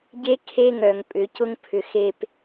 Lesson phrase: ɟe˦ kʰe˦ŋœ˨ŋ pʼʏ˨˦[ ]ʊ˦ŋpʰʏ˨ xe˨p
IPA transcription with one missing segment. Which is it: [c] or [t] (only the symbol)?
c